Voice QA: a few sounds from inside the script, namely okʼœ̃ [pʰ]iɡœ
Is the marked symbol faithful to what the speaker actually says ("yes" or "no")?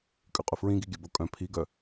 yes